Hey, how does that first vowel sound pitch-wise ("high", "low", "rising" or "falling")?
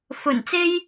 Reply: low